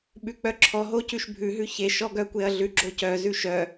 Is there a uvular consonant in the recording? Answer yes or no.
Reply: no